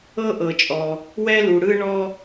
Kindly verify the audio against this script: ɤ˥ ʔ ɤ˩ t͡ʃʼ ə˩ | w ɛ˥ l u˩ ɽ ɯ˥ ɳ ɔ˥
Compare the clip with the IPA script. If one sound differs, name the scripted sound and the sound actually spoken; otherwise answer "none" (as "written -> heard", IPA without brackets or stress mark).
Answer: ə˩ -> ɔ˩